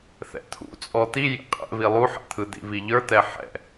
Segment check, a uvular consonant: present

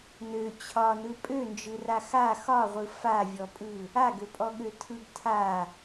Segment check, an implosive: present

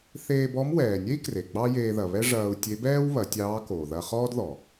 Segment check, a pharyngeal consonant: absent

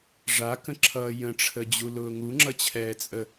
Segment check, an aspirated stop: present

